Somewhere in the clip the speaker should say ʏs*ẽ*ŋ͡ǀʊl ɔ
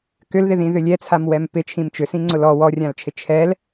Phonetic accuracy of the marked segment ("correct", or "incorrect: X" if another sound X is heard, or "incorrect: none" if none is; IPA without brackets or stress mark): incorrect: ĩ